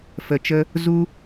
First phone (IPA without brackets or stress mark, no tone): f